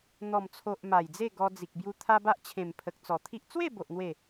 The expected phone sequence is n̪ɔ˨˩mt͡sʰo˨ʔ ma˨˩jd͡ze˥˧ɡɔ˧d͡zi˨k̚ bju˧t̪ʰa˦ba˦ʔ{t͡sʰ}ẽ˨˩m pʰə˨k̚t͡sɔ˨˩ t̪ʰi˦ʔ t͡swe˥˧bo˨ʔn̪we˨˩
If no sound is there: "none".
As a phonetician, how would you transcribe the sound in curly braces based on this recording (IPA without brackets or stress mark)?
t͡ɕʰ